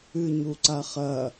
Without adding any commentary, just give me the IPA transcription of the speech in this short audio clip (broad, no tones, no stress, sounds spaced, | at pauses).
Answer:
ɨ ɲ u ǀ a χ ɐ